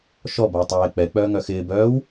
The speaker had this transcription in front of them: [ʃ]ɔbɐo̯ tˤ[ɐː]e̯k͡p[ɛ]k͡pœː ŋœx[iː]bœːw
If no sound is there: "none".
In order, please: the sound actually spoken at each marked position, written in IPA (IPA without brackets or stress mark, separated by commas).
ʃ, ɐː, ɛ, ɪː